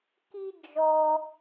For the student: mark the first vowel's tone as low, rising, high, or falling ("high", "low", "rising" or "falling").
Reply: high